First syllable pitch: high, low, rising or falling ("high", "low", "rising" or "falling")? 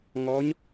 rising